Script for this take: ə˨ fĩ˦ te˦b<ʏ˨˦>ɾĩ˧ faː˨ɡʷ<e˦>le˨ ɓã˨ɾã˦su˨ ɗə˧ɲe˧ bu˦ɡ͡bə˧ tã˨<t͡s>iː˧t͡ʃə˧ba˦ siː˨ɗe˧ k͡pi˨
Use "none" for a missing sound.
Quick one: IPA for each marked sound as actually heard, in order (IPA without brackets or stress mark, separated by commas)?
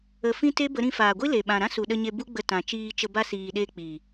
ə˨˦, i˦, t͡ʃ